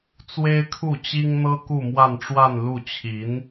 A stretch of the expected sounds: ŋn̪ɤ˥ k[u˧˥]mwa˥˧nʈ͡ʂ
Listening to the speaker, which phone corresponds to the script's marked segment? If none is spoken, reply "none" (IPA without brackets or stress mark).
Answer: u˥˧